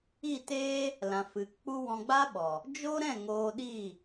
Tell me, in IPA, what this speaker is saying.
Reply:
i˦˨ t eː˦ | l ã˨ f ɨ˨ k k͡p u˦ w ɔ̃˧ ɡ͡b a˦ ɓ ɔ˨ | d͡ʒ o˦ ɾ ɛ̃˦˨ ŋ oː˧ ɗ i˦˨

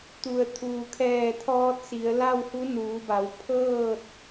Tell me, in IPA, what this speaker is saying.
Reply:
t̪ u˩ ə̯ t̪ʰ uː˩ kʰ ɛː˧˩ t̪ʰ ɔː˧ t̚ s i˩˧ ə̯ l a˥˨ w h u˧˥ n uː˩˧ b a˩˧ w pʰ ɤː˥˨ t̚

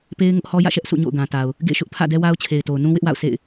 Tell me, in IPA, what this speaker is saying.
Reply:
p e˦ ɪ̯ ŋ ʊ˦ ʔ h ɔ˦ j ä̰˦˨ ʃ ɛ˦ ʔ s ṵ˦˨ ɲ o̰˦˨ ʊ̯ ɡ ã˨ t a˨ ʊ̯ | ɡ ḛ˦˨ ʃ ʊ˦ ʔ pʰ ä̰˦˨ d ɛ˦ w a˦ ʊ̯ t͡ɕʰ e˨ ɪ̯ t o˨ ʊ̯ n ũ˦ w ɪ˦ ʔ w a̰˦˨ ʊ̯ s ḛ˦˨ ɪ̯

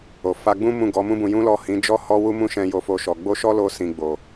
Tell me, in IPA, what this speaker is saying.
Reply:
o˨ f a˧ ɡ͡b ũ˦ m ũ˦˨ ɡ ɔ˨˦ m ũ˦ b ũ˧ j ũ˦ l ɔ˦˨ h ĩ˨˦ d͡ʒ ɔ˦ h ɔ˦ w u˦ m ũ˦ ʃ ɛ̃˧ j o˦ f o˦ ʃ ɔ˧ ɡ͡b o˦ ʃ ɔ˦ l o˧ s ĩ˨ ɡ͡b o˨

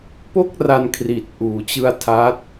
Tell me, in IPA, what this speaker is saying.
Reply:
p o˥˩ k̚ r a˧ n kʰ r i˨˩ t̚ ʔ uː˩˦ t͡ɕ ɯ˧ a̯ tʰ a˦˥ t̚

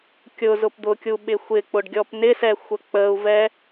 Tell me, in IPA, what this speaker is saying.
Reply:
kʲ ʊ z ʊ p d̪ ʊ kʲ u ɓ ɪ xʷ ɪ k͡p ʊ ɖ ɡʲ ɔ p n ɪ s ɛ xʷ ə k͡p ə u̯ v ɛ

